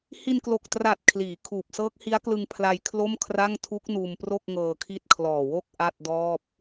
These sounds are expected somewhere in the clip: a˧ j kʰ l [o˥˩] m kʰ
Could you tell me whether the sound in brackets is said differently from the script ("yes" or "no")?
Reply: no